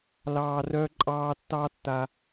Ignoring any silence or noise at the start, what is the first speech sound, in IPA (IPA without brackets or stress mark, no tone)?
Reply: l